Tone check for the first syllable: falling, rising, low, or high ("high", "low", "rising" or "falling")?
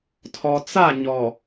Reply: low